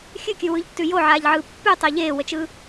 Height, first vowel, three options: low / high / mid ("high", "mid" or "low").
high